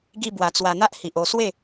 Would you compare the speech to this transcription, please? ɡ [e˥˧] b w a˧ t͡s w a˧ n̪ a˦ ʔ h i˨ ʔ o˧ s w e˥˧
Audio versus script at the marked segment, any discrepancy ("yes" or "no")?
yes